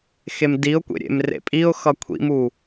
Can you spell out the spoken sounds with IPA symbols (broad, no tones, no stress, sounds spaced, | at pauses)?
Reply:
x e m d i ʊ̯ kʷ ḛ ɾʲ ḛ m r ḛ pʼ i ʊ̯ x ʌ kʷʰ ḭ m u